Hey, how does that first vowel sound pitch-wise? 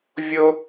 high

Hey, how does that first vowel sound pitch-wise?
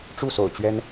falling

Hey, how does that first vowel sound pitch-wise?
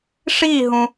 falling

